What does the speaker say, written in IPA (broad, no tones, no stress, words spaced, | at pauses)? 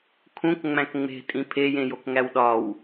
kʰũkŋ͡mæ̃k ŋ͡me̤tʼĩ pʰejẽjokŋæw ɗɒw